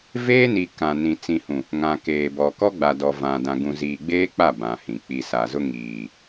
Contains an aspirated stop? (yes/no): no